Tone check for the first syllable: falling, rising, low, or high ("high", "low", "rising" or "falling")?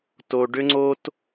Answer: low